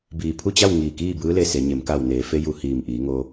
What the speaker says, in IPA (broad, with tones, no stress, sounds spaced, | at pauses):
b iː˧˩ pʰ u˥˨ t͡ɕ a˥˨ w ŋ iː˧˩ k iː˥˨ b ɯː˧˥ l e˧ s e˩˧ ɲ e˩˧ m k a˧˩ w n eː˩ f e˧ j u˧˩ h iː˧˩ m ʔ iː˩˧ ŋ o˧